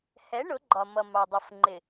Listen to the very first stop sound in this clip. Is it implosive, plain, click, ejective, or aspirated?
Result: click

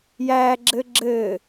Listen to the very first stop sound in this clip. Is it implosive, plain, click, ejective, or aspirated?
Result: click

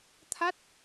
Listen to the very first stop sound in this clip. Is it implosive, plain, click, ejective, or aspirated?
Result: aspirated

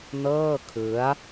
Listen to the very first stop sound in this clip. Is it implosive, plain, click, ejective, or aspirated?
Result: aspirated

